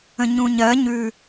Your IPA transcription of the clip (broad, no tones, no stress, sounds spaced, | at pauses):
ə̃ ɲ ũ ɲ ɜ ɲ ʉ